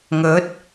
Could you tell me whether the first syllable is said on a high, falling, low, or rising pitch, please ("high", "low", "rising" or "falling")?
rising